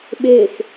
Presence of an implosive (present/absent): present